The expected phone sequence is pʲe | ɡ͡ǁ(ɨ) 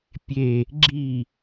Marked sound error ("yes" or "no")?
yes